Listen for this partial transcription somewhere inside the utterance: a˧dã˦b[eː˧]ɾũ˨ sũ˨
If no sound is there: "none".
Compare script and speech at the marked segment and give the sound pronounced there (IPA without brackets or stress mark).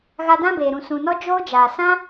eː˨